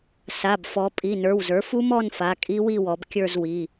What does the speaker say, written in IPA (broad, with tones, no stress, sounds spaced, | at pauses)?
s a˩˧˩ b f ɔ˩˧ pʼ i˩˧˩ n ə˞˩˧˩ w z ə˞˩˥ f u˦˥ m ɔ˥˧ n f a˩˧˩ kʼ i˦˥ w i˥˧ w ɔ˩˧ b kʲ ə˞˥˧ z w i˩˧˩